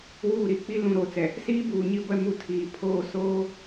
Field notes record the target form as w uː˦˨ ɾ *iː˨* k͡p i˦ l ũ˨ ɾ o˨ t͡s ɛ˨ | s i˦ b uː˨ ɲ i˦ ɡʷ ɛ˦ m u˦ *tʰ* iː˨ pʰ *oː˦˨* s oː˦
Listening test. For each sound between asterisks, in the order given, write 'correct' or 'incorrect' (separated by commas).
incorrect, correct, correct